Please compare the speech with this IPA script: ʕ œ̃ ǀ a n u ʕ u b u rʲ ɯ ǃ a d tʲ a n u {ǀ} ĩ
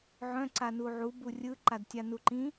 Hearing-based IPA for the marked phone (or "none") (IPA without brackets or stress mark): ǃ